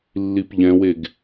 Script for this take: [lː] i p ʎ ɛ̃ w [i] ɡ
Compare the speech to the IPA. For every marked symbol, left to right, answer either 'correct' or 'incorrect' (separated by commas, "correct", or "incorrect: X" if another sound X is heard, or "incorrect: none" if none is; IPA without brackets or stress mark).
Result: correct, incorrect: e